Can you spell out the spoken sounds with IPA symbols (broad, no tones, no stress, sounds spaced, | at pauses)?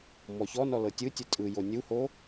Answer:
m ɔ ç ɔ n ɔ l ɤ tʲ ɯ tʲ ɯ tʼ ɯ j o nʲ u h o